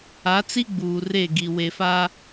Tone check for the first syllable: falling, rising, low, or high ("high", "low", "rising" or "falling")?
rising